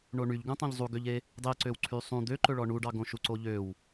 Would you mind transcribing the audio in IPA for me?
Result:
ɳoɳyʎɡũtˤõʎ zˤuɡøʎe | dˤeǀøwǀʰy sˤũ d̪øǃɵɭɔ ɳuɖɑɡõʃu ǀoʎøw

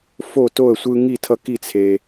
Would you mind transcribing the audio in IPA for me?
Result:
fo˥˨to˥˨ə̯sʷɯ˦ ŋi˥˨ tʰʌ˦ki˥˨ t͡sʰe˨

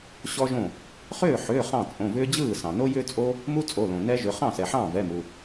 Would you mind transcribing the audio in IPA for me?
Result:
ɕɔ˥ʒõ˥˩ | χʏː˥˩ħʏː˩˧˩ χɑ̃˥˩t͡sʼõ˩˧˩vʏː˥ d͡ʑɯː˥˩ sɑ̃˩no˥ jʏː˥t͡sʼo˥ | mu˥t͡sʼo˩˧˩lõ˩ nɛ˥ʒʏ˩˧˩ χɑ̃˥˩sɛ˩ħɑ̃˥˩ vɛ˩˧˩mu˩

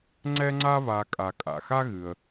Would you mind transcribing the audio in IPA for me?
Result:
ŋ͡ǀɛ˦ŋ͡ǀa˦βa˨ kʼa˨kʼa̰˩xa˥ ɣɨ˩ə̯

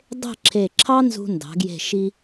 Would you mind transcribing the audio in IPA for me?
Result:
dˤe̤˥˧ǁʰe˧˩ ǁʰɑ˥nzṳ˧ndɑ̤˩˧ɡje̤˧˩ ʃi˧

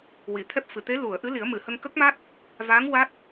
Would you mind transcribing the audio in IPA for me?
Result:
wi˨˩˨t̪ʰɛ˦˥p̚fɨ˨˩ t̪e˧˥ lu˨˩˨ə̯ ʔɨ˧˥ li˨˩˦ə̯mɨ˨˩˨hə˧ŋ kə˦˥k̚ma˦˥t̚ | va˧˥ŋ wa˦˥t̚

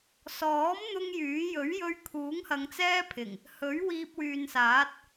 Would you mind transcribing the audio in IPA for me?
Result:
sɔː˨˥m n̪ʊ˥ŋjyː˨˥ jɵ˨˥ɥjɵ˧ɥ kʰuː˨˥ŋhɐ˨˧ŋt͡sɛː˥pʰɪ˨˩ŋ | hɵ˨˥ɥ wiː˧p̚wyː˨nsaː˨˥t̚

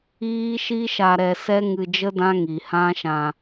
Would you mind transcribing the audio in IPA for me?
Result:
iː˦ʃi˦ʃa˧ ɾɛ˧sɛ˦ ŋɨ˧d͡ʒə˦ dã˦ ŋi˨ hã˦ʃã˧

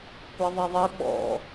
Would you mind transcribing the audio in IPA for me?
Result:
kʷɛðˤiðˤɘ ɓɔ̰

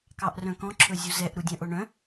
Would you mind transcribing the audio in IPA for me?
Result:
kɑʔrœ̃kɔ̃ ǁʰɵzʲuzɛʔ ɾudʲœ̃ʔoɳœ̃

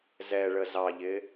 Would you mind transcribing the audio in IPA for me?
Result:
zɛɭə zɑʎɪ

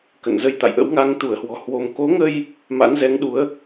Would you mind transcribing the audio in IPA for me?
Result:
kə̰˧˨nzə˧jt̪a̰˧˨jʔə̰˧˥w ŋa˧ŋ t̪u˧˩ə̯hwɔ̤˨˩ hwo˧m ko˨˦ŋə˧j | ma̰˧˥nzɛ˨˦ŋɗu˨˦ə̯

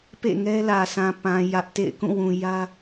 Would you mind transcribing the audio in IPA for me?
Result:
pḛ˦˨ŋɛ˦lä˨sã˨ pã˨ jä˦ʔtḛ˦˨ɪ̯ kũ˦˨wũ˨jä˦

